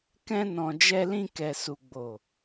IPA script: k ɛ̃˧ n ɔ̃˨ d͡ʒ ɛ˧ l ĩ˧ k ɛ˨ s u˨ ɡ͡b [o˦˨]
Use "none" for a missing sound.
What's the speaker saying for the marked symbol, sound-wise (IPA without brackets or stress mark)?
o˨